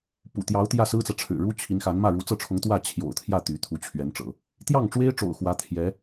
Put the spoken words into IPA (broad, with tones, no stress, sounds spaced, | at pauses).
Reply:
p ṵ˨˩ t̪ j ɑ˧˥ ʊ̯ t̪ j ä˥˩ s ɹ̩˥ t͡s ä˨ ʈ͡ʂʰ ɻ̩˨˩ ɻ u˥ t͡ɕʰ i˧˥ n x a˧˥ n m ä˥˩ ɻ u˧˥ t͡s ɤ˥˩ ʈ͡ʂʰ ʊ˧˥ ŋ t̪ w ä˥˩ t͡ɕʰ j o̰˨˩ ʊ̯ t̪ʰ j ä˥˩ t̪ y˧˥ t̪ʰ u˧˥ t͡ɕʰ ɥ ɛ˧˥ n ʈ͡ʂ ɤ̰˨˩˦ | t̪ j ɑ˥˩ ŋ ʈ͡ʂ w e˥ ɪ̯ ʈ͡ʂ o̰˨˩ ʊ̯ x w ä˧˥ t̪ʰ j ɛ˧˥